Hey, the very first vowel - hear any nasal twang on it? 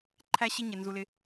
no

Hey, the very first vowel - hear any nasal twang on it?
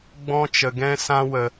yes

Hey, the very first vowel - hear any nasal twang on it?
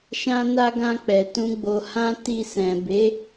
yes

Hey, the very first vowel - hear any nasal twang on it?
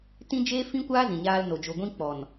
yes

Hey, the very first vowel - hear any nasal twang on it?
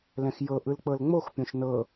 yes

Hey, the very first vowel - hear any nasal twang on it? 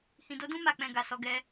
yes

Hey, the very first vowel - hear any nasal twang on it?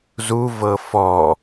no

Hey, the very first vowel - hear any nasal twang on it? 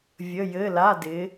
no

